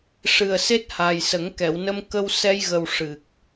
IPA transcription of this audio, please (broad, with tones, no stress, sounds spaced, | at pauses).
ʂ ɨ˨˩ ə̯ s e˦˥ t̚ h aː˨˩ j s ə˨˩˦ ŋ k ɛ˨˩˨ w n ə˧ m k ə˧ w s ɛ˧ j ɣ ə˨˩ w ʂ ɨ˨˩ k̚